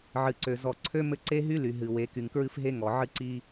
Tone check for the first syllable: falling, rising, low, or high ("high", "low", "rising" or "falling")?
low